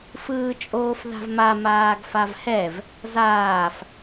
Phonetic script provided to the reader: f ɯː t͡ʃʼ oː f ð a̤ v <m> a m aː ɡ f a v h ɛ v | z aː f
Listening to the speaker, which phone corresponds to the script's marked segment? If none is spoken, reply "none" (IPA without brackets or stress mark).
m